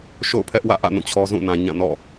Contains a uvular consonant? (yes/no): no